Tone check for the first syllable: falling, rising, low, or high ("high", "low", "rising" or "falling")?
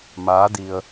rising